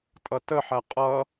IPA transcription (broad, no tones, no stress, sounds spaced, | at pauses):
tʼ ʌ t ə ħ æ qʼ ʌ